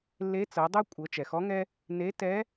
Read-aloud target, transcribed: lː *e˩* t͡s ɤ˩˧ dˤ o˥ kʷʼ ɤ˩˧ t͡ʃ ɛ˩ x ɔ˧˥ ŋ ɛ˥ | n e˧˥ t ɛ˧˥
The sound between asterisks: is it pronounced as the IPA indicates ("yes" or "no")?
no